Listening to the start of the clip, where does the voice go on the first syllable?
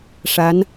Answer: rising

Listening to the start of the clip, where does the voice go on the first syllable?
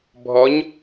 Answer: rising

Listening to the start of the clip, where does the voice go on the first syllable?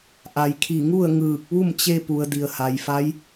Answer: low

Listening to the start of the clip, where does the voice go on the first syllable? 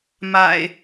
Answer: low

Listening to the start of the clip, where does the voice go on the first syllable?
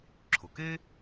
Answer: low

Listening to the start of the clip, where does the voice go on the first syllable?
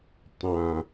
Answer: low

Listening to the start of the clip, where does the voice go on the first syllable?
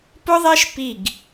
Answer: high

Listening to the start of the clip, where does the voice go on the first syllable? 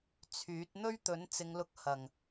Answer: rising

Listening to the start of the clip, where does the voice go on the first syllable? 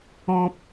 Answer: high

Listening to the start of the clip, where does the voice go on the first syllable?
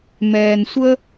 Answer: low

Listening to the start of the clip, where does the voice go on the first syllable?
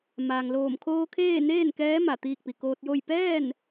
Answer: low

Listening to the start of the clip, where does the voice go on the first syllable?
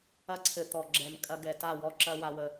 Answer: high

